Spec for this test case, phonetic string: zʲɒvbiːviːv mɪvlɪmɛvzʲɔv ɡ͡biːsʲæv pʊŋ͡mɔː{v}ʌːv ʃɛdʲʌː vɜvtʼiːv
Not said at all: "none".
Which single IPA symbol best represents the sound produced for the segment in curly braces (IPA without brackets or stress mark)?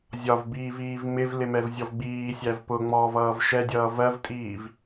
v